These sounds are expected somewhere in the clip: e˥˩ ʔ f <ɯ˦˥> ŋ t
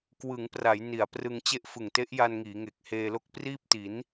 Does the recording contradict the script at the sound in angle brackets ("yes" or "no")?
yes